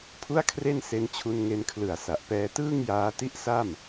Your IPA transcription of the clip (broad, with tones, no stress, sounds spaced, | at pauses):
pʰ u˥˩ a̯ kʰ r e˥˩ n s e˧ n t͡ɕʰ u˧ n ŋ e˧ n kʰ l ɯ˨˩ a̯ s a˨˩ ʔ p ɛː˧ t ɯː˥˩ ŋ j aː˦˥ t i˥˩ ʔ s a˥˩ m